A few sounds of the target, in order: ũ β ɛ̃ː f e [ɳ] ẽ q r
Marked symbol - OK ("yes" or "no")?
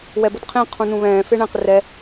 yes